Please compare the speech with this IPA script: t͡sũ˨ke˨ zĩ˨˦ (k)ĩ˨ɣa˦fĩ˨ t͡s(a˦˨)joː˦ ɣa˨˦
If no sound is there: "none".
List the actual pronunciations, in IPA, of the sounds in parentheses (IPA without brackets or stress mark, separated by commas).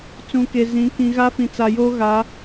k, a˨